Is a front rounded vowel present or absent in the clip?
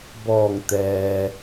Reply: absent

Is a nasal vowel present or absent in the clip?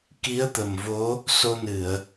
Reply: absent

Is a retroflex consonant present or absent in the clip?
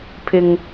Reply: absent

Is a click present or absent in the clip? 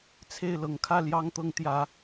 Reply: absent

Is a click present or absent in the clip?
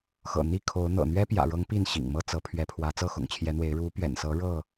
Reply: absent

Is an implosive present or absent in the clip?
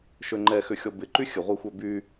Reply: absent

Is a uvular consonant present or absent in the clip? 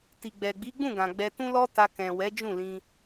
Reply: absent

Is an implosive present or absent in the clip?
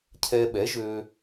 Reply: present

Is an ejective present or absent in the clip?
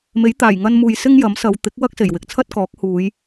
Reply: absent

